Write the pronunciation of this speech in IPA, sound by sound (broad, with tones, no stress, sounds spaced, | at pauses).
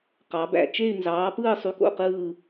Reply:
q ɑ˨˦ b æ̰˨ t͡ʃ e˥˧ y̯ n z ɑː˨˦ p ɯː˥˧ sˤ y˧˥˧ k o̰˧˥˧ q ɯː˥˧